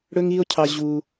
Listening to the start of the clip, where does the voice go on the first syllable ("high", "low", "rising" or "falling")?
high